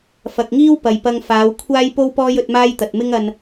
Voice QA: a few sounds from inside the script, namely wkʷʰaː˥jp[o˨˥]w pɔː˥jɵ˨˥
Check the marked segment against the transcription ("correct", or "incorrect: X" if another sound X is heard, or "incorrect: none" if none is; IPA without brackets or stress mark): incorrect: o˥